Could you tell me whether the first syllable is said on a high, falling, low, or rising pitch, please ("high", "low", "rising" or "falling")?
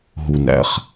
low